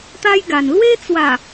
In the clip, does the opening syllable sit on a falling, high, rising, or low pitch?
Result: high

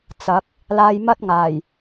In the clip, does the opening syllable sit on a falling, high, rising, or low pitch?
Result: rising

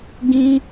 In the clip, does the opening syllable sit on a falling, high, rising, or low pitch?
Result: high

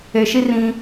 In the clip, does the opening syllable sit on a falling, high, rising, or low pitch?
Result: low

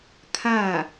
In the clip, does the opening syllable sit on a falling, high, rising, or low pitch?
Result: falling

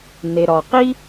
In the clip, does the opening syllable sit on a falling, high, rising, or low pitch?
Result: low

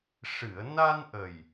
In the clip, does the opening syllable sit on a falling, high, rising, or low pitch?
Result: low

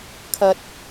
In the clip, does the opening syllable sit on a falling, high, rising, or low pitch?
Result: low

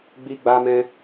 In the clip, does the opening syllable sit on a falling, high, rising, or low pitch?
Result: high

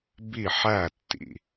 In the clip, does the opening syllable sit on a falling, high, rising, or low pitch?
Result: falling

